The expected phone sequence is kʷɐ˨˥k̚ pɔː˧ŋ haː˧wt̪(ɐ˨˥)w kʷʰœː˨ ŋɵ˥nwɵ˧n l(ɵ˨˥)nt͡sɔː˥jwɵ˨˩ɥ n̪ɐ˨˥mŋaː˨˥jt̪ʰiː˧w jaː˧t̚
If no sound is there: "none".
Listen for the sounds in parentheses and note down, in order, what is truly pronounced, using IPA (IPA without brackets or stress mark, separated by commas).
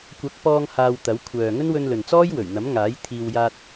ɐ˨˥, ɵ˨